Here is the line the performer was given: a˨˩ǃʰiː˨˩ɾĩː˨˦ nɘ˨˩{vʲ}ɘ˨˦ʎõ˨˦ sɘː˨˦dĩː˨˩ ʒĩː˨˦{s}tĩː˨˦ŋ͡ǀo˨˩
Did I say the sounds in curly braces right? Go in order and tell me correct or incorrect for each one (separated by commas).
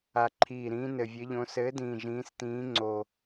correct, correct